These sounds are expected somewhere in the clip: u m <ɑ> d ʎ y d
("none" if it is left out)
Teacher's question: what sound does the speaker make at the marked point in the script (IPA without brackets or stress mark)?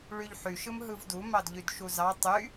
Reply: ɑ